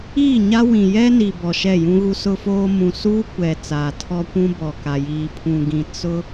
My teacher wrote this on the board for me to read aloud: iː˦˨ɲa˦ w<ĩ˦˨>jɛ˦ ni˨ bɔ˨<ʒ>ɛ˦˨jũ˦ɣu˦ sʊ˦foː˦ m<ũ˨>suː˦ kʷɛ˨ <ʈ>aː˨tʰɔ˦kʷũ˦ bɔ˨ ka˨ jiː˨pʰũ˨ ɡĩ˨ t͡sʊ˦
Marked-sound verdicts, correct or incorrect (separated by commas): incorrect, incorrect, correct, incorrect